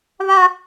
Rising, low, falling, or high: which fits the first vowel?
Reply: high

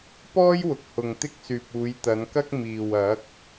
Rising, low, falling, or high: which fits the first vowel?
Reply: high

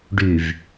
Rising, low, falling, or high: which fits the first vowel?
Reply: low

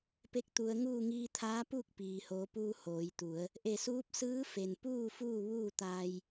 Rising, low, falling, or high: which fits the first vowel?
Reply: rising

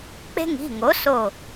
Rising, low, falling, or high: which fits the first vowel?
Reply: high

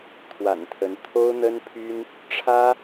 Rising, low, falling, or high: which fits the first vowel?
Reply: low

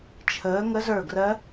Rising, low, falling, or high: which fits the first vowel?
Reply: rising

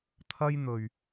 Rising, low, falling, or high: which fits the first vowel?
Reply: high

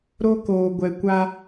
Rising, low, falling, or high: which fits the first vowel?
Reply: high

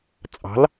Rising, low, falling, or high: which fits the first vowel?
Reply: rising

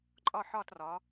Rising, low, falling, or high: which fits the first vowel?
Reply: falling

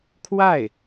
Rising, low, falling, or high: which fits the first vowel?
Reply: falling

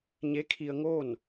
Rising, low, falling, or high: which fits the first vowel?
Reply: rising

